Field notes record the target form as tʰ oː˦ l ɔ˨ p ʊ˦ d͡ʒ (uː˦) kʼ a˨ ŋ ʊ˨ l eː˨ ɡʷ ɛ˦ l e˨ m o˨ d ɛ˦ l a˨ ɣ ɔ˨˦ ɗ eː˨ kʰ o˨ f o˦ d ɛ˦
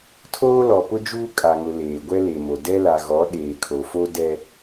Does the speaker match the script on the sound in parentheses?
yes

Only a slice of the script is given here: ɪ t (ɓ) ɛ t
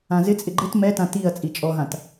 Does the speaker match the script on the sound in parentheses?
no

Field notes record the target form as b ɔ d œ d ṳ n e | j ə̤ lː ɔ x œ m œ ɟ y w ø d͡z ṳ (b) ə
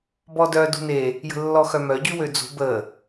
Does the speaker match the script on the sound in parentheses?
yes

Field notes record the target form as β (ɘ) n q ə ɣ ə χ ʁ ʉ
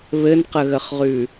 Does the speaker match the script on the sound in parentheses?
yes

